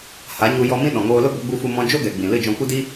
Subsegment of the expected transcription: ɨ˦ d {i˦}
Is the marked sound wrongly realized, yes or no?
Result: no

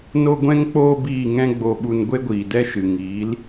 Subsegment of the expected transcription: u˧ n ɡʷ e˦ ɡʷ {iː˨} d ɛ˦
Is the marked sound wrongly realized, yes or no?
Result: no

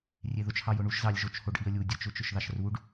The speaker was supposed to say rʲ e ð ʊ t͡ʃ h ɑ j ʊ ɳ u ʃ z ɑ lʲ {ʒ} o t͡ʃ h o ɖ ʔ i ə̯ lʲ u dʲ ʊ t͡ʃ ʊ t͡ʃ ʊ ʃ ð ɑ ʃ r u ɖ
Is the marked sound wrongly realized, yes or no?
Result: no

